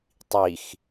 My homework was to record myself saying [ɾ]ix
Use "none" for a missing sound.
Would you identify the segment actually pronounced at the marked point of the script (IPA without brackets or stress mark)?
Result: tˤ